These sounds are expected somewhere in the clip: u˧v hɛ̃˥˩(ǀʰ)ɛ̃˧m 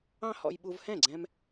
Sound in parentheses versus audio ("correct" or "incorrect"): incorrect